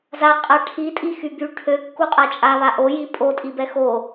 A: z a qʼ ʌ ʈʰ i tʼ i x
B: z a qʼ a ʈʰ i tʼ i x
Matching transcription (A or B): B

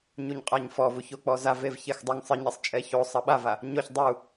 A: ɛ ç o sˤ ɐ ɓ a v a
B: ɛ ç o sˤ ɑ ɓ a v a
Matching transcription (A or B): A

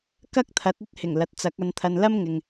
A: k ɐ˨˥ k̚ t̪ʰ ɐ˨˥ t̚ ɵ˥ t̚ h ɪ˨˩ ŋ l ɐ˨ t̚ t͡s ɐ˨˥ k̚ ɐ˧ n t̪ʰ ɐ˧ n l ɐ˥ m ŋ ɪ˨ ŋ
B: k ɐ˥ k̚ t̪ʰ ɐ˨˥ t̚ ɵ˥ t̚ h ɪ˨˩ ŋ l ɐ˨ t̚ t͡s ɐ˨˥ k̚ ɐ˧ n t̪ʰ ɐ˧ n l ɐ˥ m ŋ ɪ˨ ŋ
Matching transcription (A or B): B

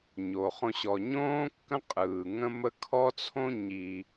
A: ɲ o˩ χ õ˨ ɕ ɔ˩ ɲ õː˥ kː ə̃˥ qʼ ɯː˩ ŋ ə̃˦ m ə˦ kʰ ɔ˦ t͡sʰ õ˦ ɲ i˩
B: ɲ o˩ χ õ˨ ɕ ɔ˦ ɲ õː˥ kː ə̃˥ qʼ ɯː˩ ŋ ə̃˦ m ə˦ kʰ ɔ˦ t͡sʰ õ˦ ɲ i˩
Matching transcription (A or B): A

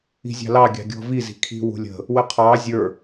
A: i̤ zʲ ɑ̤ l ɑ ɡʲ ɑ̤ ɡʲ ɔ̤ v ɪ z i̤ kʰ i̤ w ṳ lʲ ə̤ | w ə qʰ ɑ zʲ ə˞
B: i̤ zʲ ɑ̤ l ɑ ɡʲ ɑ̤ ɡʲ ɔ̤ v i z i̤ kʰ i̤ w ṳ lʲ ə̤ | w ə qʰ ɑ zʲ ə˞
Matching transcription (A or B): B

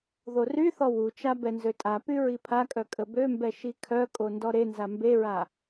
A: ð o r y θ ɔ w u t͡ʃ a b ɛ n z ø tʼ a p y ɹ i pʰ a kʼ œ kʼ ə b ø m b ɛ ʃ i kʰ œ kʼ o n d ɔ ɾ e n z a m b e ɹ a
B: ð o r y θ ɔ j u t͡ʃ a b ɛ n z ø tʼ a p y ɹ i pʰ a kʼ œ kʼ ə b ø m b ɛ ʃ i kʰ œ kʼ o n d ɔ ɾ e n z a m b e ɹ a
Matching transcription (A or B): A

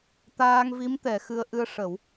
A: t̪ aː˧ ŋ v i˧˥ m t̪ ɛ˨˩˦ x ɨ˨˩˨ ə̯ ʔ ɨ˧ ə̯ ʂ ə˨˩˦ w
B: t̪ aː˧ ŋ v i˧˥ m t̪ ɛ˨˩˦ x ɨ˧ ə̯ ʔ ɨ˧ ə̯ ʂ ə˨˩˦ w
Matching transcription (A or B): B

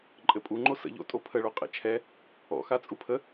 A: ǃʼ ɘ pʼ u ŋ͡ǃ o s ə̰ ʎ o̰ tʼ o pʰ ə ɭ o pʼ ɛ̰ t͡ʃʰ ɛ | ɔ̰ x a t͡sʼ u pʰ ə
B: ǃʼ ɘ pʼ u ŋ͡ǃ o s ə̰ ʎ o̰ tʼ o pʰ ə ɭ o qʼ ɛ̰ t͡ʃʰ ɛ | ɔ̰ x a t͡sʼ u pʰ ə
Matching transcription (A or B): B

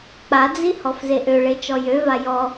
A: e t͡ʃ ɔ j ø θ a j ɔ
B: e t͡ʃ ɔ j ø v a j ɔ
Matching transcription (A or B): B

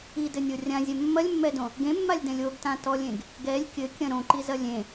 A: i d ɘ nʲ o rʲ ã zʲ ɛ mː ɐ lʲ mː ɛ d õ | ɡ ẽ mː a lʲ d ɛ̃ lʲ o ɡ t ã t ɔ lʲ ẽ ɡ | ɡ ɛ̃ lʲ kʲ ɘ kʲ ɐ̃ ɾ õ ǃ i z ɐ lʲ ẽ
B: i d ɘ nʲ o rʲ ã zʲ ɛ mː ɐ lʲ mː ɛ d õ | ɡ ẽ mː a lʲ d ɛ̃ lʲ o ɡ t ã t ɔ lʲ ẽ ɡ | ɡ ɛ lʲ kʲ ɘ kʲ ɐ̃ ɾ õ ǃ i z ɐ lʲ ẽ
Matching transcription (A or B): B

